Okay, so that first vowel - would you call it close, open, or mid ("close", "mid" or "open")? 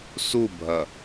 close